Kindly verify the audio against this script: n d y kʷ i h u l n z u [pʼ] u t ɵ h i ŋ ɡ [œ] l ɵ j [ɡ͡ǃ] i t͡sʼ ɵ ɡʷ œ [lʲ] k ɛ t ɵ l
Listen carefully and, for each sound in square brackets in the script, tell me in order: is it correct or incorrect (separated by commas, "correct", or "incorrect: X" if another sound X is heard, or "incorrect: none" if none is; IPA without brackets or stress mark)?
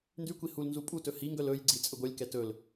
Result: correct, correct, incorrect: ɡ͡ǀ, correct